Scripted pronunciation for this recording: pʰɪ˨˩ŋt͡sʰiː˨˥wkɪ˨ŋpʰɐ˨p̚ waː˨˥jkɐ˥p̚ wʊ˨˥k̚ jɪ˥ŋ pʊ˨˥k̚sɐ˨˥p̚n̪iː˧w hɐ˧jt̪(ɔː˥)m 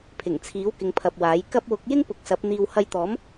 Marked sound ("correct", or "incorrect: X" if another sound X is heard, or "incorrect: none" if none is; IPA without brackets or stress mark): incorrect: ɔː˨˥